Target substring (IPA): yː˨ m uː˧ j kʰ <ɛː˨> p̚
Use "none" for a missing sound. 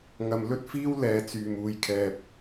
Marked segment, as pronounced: ɛː˧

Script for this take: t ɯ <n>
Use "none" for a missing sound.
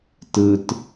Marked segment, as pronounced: t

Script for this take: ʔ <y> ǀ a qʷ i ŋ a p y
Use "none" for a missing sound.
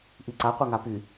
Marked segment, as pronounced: i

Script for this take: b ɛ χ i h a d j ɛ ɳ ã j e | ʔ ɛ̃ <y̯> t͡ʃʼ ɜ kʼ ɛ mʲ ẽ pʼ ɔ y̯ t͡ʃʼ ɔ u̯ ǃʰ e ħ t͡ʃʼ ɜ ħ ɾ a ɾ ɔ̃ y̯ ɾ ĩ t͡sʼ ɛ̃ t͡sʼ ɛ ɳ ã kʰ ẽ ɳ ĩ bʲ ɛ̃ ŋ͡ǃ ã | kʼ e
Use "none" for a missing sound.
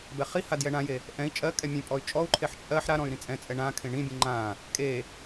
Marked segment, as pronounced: i̯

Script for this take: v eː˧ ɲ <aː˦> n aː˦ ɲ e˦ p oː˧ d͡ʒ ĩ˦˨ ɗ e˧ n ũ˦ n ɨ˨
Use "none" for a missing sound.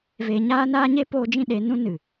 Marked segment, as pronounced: aː˦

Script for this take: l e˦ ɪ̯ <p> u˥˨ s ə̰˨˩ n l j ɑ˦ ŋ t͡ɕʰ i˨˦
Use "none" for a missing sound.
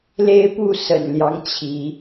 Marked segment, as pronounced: p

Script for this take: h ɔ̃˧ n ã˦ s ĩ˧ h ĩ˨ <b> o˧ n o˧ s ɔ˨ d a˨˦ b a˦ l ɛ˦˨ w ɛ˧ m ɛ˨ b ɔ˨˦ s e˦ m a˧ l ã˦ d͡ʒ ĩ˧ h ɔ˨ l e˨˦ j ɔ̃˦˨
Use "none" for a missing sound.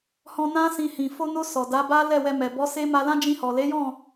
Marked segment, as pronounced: f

